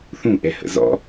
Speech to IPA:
θ ũ ʔ ɛ h ə̰ z ɔ̰

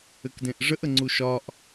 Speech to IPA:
ɘ k d ẽ ʔ ʐ ə ʔ ə ŋ͡ǀ u ʃ ɒ ʔ

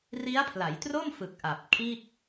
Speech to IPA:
r i˦˥ a̯ pʰ l a˩˦ j t r o˥˩ m f ɯ˨˩ k̚ ʔ a˨˩ p̚ kʰ iː˥˩ k̚

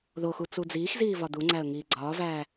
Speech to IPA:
ð o x u t͡s u d͡z iː x z iː v ɒ d̪ u ŋ͡ǀ æ ə̯ ŋ iː ɡ͡ǀ ɒː v æː

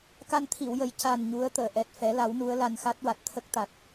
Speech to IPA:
k a˧ n t̪ʰ i˨˩˨ w j ə˨˩ j c a˨˩ n ɲ u˧˥ ə̯ t̪ əː˨˩˨ ʔ ɛ˨˩ t̚ f ɛ˨˩˦ l a˨˩˦ w n u˧˥ ə̯ l a˧ n x a˦˥ t̚ w a˨˩ t̚ t̪ʰ ə˦˥ k̚ t̪ a˨˩ t̚

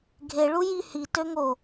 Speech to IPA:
ɡʱ e ɭ u j i h i t ø ŋ o

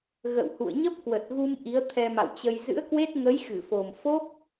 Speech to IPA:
ɣ ə̰˧˨ w h ṵ˧˨ ə̯ ɲ ə˦˥ p̚ k w ə˨˩ t̚ ɣ u˧ m ʔ i˨˦ ə̯ t̪ʰ ɛ˧ m a̰˧˨ w t͡ɕ ə˧ j z ɨ̰˧˥ ə̯ k w e˦˥ t̚ ŋ ə˨˦ j x ɨ˧˩ f o˨˩ m f o˦˥ k̚

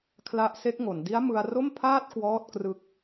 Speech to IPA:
kʰ l a˦˥ ʔ s e˦˥ k̚ ŋ o˩˦ n d i˦˥ a̯ m ɯ˧ a̯ r o˥˩ m pʰ aː˥˩ t̚ k w ɔː˥˩ t̚ k r ɯ˥˩ k̚

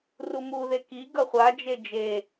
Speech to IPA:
r u m u ð e k i ɡ ʌ χʷ a d͡ʒ e d͡ʒ e

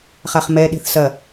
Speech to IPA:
χ a χ m ɛ ɗ e̤ θ s ɐ

